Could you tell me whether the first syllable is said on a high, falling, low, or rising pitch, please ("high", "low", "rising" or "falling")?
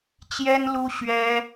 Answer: high